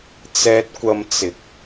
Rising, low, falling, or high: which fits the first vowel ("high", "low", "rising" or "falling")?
high